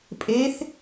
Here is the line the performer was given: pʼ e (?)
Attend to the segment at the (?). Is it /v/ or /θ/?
θ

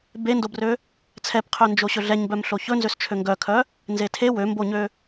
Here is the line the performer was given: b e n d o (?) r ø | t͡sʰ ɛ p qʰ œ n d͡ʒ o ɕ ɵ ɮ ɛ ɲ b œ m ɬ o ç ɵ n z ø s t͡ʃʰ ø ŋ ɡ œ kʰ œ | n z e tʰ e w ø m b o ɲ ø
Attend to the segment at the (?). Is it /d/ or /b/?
b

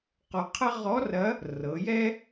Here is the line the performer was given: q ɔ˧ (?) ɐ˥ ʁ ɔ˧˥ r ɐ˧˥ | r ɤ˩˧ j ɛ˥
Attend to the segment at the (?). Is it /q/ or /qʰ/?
qʰ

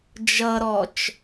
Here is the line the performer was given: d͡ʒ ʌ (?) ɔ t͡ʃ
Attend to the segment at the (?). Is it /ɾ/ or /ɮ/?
ɾ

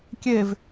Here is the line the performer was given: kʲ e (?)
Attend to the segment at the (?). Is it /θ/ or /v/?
v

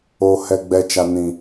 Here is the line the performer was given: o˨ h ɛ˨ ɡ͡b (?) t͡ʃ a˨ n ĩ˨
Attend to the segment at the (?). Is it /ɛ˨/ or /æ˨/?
ɛ˨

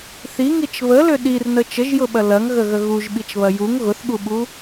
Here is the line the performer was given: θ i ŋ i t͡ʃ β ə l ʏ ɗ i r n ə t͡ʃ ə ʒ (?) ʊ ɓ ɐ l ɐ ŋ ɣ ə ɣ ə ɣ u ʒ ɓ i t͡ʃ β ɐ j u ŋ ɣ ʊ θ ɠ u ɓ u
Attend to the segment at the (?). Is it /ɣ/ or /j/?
j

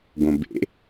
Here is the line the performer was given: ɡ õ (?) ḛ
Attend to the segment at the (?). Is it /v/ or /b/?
b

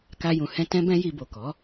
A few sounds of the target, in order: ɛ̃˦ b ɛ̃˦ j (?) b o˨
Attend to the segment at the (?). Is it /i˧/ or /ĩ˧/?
i˧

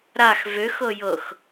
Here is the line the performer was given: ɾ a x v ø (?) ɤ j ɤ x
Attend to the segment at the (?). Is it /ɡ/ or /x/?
x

